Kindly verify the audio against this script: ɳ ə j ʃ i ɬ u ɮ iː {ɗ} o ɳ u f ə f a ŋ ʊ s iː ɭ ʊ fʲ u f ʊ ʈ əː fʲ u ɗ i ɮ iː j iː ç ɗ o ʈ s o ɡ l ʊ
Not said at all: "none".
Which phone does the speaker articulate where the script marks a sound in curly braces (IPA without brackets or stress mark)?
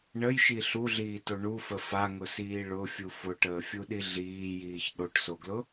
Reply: t